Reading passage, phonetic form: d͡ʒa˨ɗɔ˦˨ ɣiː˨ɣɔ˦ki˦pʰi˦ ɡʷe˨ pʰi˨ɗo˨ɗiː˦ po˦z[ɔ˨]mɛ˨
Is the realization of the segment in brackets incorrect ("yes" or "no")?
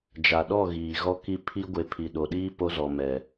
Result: no